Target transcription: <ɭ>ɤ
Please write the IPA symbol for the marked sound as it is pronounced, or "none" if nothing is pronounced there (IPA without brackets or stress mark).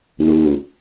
l